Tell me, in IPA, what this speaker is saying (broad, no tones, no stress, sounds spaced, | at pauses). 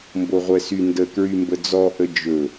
m b o ʁʷ ɛ s y n d ə k ɹ y m b ə d͡z ɔ ʔ ə d͡ʒ ɵ